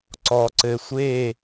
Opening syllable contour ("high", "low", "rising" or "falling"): low